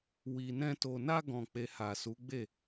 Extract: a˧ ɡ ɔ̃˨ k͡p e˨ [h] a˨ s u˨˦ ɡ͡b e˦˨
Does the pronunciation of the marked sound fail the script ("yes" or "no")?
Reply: no